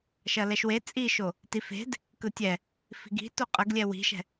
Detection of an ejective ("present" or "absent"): present